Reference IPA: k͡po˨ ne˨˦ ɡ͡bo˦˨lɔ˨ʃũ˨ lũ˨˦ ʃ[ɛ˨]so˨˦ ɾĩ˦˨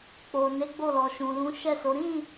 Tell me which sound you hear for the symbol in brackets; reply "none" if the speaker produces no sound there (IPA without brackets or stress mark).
ɛ˦˨